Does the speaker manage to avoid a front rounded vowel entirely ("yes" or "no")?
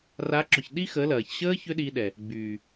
no